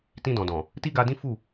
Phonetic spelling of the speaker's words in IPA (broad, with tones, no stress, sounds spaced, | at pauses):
t ĩ˧ d ɔ̃˨ d ɔ̃˨ | t i˦ ɡ a˧ d ĩ˦ f u˦˨